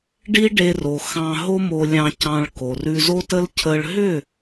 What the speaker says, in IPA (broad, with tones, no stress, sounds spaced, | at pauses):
ɖ i˦ ɖ e˧ r o˨ x ɑ̃˧ ɦ o˦ m o˧ lʲ ɑ̃˧ c ɑ̃˧ ɭ k o˨ r ʉ˧ z o˦ t ə˦ l cʰ ə˧ ɭ ɦ ʏ˦˨